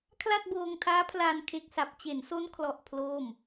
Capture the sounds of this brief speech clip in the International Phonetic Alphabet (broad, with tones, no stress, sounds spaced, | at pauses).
kʰ l a˥˩ t̚ b oː˧ ŋ tʰ aː˦˥ pʰ l aː˧ n kʰ e˦˥ k̚ s a˨˩ p̚ t͡ɕ e˩˦ n s o˦˥ n kʰ l ɔ˨˩ ʔ pʰ l oː˥˩ m